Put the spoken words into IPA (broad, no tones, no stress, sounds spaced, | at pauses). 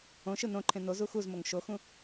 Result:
õ ʃ ɯ n õ ǃʰ ẽ n o z u x u z m o ŋ ʃ o x ũ